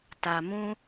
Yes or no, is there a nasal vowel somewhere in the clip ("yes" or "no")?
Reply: yes